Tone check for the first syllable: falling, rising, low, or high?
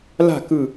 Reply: falling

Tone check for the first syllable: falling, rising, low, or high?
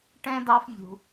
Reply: high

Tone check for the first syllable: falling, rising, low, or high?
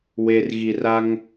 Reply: low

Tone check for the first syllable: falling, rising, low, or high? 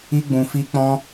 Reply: high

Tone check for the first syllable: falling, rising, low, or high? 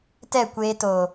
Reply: falling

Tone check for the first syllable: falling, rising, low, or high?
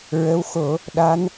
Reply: rising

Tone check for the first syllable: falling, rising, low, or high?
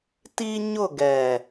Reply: high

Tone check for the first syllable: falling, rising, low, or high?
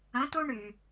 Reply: rising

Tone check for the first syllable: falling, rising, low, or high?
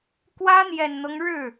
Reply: high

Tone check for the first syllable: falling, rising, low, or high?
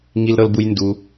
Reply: high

